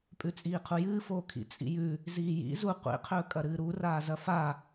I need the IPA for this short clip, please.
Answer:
pʼ ʉ t͡sʼ iː qʰ u j ɨː f oː kʰ ḭ t͡sʼ ḭ j ʉ | z iː j ḭ z u qʷ ḭ qʰ ɵː kʼ ɐ ɾ ɨː ɾ u r aː z ɐ f a

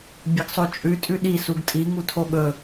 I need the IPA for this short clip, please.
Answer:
bʲ ɐ ɡ sˤ o t͡ʃʼ ʉ tʼ ʉ ɗ i s u ɡ tʼ i ŋ u tʰ o ɠ ɵ

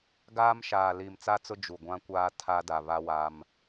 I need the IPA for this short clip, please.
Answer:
ɡ aː˦ m ʃ aː˨ l iː˨ m t͡s a˦ t͡s ʊ˦ d͡ʒ u˨ ɡʷ ã˦ kʷ aː˦ tʰ a˦ d a˨ β a˦ w a˦ m

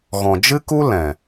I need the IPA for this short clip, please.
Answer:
ɣ ɔ̃˨ d͡ʒ ɨ˦ k u˦ l ɛ̃˨

